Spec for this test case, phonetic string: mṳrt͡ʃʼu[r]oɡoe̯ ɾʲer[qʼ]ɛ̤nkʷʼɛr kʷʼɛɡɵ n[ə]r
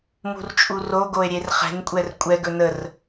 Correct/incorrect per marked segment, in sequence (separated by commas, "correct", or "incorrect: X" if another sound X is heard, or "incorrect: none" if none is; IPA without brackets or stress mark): correct, incorrect: χ, correct